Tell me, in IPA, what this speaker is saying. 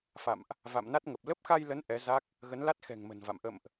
f a̰˧˨ m ʔ | v a̰˧˨ m n a˦˥ t̚ ŋ ə˨˩ p̚ l ə˦˥ p̚ x a˧ j l ə˨˦ n ʔ ɛ˨˦ z a˦˥ k̚ | ɣ ə˨˦ n l a˦˥ t̚ x ɛ̤˨˩ ŋ m ə̤˨˩ n v a̰˧˨ m ʔ ə̰˧˨ m ʔ

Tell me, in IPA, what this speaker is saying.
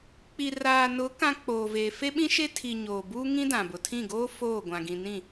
k͡p i˨ r aː˨ n ʊ˨˦ k ã˦ k͡p oː˨ v eː˨ f e˦ ɓ ĩ˦ ʃ e˦ tʰ i˨ ɲ oː˨ b uː˦ ŋ ĩ˦ d ã˨ b ʊ˨ tʰ ĩ˦˨ ɡ oː˦ f oː˦˨ ɡʷ ã˨ ɡ ĩ˨ n ĩ˦˨

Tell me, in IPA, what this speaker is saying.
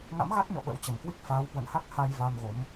ŋ a̰˧˥ m ɣ a˦˥ t̚ ɲ ɔ̰˧˨ ɓ ə̰˧˥ w t͡ɕ ə˧˩ m k w i˦˥ k̚ f aː˨˦ w h w ə̰˧˨ n h a˦˥ k̚ h a˧ j v a˧ m ɣ o˨˦ m

